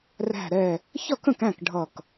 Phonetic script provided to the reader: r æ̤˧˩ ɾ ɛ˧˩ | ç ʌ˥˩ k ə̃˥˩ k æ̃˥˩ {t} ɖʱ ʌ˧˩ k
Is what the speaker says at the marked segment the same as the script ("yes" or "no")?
no